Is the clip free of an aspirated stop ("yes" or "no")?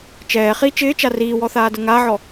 yes